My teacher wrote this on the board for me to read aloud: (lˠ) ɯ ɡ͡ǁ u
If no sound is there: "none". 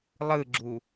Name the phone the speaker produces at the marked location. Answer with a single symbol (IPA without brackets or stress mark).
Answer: lˠ